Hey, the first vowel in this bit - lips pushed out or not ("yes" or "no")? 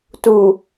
yes